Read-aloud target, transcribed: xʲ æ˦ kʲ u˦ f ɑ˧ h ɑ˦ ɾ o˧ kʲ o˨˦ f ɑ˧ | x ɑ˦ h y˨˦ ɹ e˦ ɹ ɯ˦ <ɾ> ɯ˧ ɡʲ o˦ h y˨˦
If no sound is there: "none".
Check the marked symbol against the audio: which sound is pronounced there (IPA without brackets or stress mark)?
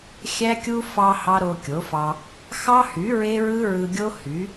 ɹ